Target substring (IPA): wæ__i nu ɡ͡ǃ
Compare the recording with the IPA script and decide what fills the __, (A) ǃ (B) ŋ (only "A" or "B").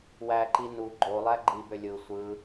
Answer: A